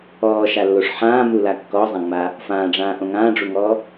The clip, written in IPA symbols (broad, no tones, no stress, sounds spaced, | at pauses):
ɔː ʃ a lː o ʂ ħ ãː m u l a kː ɔ zˤ ã ŋ͡m a | f ãː ɖ͡ʐ ãː ʔ õ ŋ ãː ɖ͡ʐ u ŋ ɔː